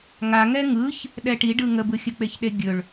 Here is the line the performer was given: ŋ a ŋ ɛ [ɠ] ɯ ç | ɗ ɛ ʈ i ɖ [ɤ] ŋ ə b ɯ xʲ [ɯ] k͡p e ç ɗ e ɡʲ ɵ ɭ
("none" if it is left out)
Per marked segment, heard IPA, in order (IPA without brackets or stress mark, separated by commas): ŋ, ɯ, ə